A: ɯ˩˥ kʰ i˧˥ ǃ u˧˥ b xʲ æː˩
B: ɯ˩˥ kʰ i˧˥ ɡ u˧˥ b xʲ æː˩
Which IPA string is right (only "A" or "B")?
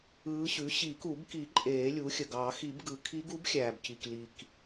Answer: B